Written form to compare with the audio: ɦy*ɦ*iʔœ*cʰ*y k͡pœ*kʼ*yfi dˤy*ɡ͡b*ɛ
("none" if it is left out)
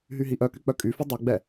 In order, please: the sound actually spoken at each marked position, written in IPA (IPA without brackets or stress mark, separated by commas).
ɦ, k, kʼ, ɡ͡b